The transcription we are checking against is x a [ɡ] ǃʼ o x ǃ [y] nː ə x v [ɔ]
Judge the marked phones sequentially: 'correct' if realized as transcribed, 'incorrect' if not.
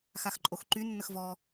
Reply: incorrect: x, correct, correct

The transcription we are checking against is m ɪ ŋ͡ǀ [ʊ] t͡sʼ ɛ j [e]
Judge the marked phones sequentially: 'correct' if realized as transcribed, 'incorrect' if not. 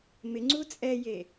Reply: incorrect: u, correct

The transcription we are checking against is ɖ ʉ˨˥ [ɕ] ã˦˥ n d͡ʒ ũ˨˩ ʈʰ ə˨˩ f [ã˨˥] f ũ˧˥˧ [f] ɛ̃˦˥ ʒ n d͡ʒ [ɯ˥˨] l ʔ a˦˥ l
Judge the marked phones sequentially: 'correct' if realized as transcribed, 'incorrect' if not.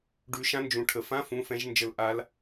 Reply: incorrect: ʃ, incorrect: ã˧˥˧, correct, incorrect: ə˥˨

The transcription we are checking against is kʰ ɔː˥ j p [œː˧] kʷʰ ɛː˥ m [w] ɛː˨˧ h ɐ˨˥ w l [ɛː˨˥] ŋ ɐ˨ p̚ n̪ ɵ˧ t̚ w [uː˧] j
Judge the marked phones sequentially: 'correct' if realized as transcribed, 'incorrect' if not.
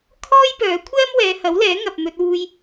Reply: incorrect: œː˨˥, correct, correct, correct

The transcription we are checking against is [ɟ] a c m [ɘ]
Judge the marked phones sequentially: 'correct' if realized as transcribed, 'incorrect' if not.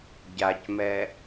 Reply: correct, incorrect: ɛ

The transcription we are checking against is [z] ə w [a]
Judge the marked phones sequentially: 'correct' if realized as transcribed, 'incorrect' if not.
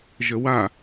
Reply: incorrect: ʒ, correct

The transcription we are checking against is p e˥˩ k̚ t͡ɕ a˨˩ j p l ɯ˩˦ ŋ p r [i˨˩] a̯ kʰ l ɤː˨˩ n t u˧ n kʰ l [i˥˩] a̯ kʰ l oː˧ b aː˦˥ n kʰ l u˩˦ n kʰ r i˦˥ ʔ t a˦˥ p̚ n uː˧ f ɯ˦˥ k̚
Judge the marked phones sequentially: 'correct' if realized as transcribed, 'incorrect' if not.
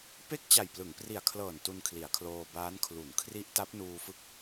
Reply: correct, incorrect: i˩˦

